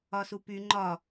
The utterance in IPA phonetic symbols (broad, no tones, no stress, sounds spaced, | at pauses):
ɒ s u p y ŋ͡ǃ ɒ